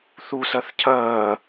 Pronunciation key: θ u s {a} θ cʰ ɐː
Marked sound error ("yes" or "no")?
yes